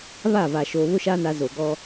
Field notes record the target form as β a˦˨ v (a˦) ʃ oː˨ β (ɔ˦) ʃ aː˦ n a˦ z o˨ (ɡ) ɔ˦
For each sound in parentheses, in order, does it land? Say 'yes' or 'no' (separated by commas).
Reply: no, no, yes